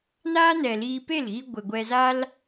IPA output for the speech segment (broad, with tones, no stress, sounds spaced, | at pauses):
n aː˦ n ɛ˨ l iː˧ p e˦˨ l ɣ i˧ ɡʷ e˨ ɡʷ ɛ˧ z a˦ l